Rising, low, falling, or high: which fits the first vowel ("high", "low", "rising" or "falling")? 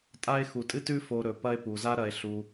high